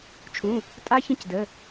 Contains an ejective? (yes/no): yes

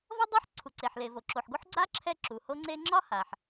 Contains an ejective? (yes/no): no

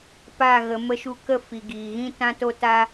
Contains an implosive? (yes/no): no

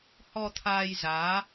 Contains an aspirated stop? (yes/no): yes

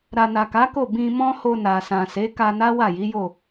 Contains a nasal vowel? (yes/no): yes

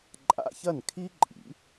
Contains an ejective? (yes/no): yes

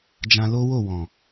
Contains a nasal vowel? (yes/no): yes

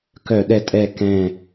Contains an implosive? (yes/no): yes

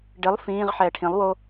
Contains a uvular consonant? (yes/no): yes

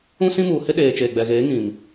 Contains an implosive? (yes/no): yes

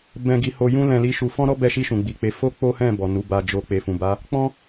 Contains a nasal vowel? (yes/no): yes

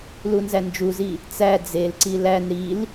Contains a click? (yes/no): yes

